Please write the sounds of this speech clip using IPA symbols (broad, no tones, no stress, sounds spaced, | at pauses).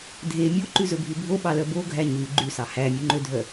dʱ e mʲ o ǃ ʉ z ɵ bʱ ʉ bʱ o ɓ ɑ l œ b o ɡʱ æ ɲ ʉ ɡ͡ǃ ʉ s ɑ h æ mʲ ʉ ŋ͡ǃ ø dʱ œ